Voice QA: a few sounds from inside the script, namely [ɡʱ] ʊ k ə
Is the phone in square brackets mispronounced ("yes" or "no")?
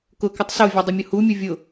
yes